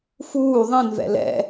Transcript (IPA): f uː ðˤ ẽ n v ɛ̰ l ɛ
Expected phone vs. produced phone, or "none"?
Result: ɛ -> ɛ̰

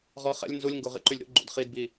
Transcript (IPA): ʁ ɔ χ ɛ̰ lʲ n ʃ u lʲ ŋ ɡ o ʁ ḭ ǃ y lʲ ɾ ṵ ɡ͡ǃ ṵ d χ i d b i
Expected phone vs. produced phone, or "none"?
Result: ʃ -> z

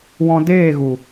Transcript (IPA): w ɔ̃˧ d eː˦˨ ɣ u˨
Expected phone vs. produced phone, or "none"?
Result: none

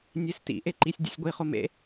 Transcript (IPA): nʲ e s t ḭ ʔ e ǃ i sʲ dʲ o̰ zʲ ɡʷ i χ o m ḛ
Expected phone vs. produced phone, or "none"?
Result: zʲ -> sʲ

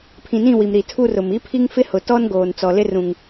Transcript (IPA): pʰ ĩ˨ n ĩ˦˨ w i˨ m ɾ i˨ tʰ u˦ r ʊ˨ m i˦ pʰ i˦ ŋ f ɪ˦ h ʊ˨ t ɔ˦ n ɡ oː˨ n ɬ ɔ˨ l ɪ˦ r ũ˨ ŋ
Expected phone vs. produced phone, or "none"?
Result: ɬ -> t͡s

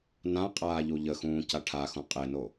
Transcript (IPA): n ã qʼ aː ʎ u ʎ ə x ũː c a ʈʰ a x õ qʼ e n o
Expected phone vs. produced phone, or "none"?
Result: none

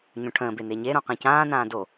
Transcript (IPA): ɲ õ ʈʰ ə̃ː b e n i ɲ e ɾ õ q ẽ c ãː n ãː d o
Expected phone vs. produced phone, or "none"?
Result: i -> e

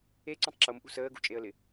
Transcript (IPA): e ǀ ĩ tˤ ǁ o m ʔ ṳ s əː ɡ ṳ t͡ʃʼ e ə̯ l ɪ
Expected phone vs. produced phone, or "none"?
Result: none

